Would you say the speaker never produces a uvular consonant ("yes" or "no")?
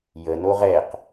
no